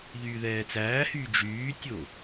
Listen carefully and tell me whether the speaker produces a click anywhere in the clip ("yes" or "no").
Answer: no